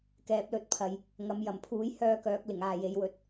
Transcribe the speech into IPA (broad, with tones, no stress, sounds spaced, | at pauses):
k ɛː˨ p̚ l ɵ˧ t̚ pʰ ɐ˨ j | ŋ ɐ˨˧ m j ɐ˨˩ m pʰ uː˨˥ j h œː˧ k œː˨˥ k̚ l ɪ˨˩ ŋ aː˨ j e˨˥ j w ɵ˧ t̚